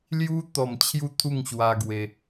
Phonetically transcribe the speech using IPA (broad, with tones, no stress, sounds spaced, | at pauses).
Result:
l j u˦ t̪ ɔ˨˩ m t͡ɕʰ j u˥˧ t̪ʰ u˥˧ ŋ ɕ w a˧ ɡ w e˧